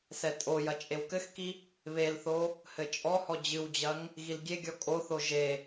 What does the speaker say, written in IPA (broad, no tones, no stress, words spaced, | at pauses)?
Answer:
sɛtʼojɐ t͡ʃʼewkɘxki | βelθo | hɘt͡ʃʼɔhɔ d͡ʑɨwd͡ʑɐŋ | ɣilɡʲeɡʲɔ kʼoθo ʒe